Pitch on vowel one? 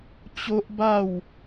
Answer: high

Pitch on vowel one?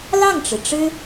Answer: falling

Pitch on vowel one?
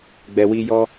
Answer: low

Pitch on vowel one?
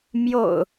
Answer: low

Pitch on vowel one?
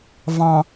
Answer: low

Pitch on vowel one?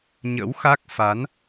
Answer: rising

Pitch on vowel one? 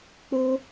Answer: high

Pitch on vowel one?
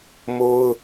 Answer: high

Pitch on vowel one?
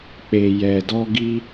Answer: low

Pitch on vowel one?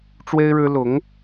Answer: high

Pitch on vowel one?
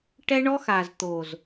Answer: high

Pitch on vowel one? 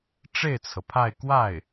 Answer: falling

